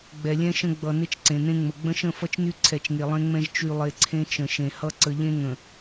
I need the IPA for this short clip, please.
ɡ͡b ɛ˨ lʲ ɛ̃˦ ʃ ə̃˦ ɡ͡b ʌ˨ n e˦ t͡ʃ ǀ ẽ˨ n ẽ˦ ŋ͡m ə˨ ɡ͡b ə̃˦ ʃ ə̃˦˨ f ʌ˦ t͡ʃ n y˦ ǀʰ ɛ˨ t͡ʃ ŋ e˨ lˠ ẽ˦ ŋ͡m ɛ̃˦ ʒ t͡ʃ y˨ lˠ e˨ ǀʰ ẽ˦ t͡ʃ ə̃˨ ʃ ẽ˨ h ʌ˦ ǀ ə˨ ʎ ẽ˦ ŋ ə̃˨

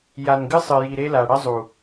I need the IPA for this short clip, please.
j a˨ n ɡ ɨ˦ sˤ ɨ˨ j i˨ ɾ e˦ l a˨ ɽ ɐ˦ zˤ u˨

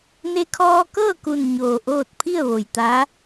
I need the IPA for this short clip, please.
n e˧ kʰ ɔː˧ k ɤː˥˨ k u˧˩ n ɲ oː˧˩ ʔ oː˥˨ t̚ pʰ i˥˨ ə̯ ʋ o˩ j t̪ a˧˥

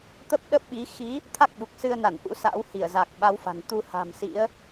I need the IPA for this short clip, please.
t̪ ə˦˥ p̚ ɗ ə˦˥ p̚ ɓ i˨˦ x i˨˦ | t̪ʰ a˦˥ k̚ ɓ u˨˩ k̚ s ɨ˧ ə̯ n a˧˩ n ʔ ṵ˧˥ s a̰˧˥ w h i˧˩ ə̯ z a˨˩ k̚ ɓ a˨˦ w f a̤˨˩ n t̪ u˧ h a̤˨˩ m s ḭ˧˥ ə̯

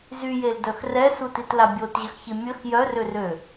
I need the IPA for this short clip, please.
z y j e l d œ x r ɛ s u t i t l a bʲ o t ʑ ə x ç i mʲ ə x j œ r ø r ø

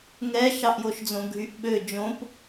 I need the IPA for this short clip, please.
ŋ ɛ ʃ ɑ ʔ j o ʃ d͡z õ ɡʱ y ʔ ɓ ø d͡ʒ õ p

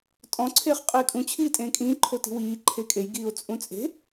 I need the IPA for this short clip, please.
tʼ ɔ̃ ǀʰ eː χ qʼ eː kʼ ũ t͡ɕʰ iː tʼ ẽː kʼ ĩː ǃʰ o t i̤ w iː ǃʰ eː kʼ e j ɡ iː o̯ t͡sʼ ũ t͡sʼ e̤

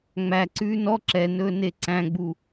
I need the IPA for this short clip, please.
ŋ͡m æ ǀ ʉː n ɔ ǁ ɛ n ɵː n e ǀ æ̃ ɡ͡b u

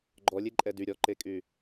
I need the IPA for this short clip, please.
ɡ͡ǃ ɔ lʲ e ǃʼ ɛ d y ɾʲ ɔ ǃ e kʼ y

